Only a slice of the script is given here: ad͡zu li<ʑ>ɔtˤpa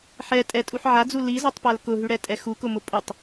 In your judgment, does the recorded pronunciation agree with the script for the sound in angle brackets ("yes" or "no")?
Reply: no